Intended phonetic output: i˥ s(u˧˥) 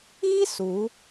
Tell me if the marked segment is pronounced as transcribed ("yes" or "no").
yes